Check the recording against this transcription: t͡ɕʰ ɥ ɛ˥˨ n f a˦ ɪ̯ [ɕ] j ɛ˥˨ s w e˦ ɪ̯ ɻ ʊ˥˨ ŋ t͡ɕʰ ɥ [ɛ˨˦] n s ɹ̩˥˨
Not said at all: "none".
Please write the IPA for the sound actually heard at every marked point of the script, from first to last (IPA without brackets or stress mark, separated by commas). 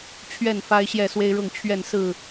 ɕ, ɛ˥˨